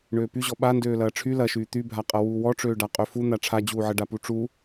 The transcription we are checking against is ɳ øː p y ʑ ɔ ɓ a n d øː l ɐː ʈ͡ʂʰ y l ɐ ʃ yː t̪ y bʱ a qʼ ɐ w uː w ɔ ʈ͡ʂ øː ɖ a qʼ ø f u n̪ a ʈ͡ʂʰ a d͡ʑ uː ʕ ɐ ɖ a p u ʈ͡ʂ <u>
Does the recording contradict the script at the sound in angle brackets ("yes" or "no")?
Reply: no